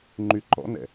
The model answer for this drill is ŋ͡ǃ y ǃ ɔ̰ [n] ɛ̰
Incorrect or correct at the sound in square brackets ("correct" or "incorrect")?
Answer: correct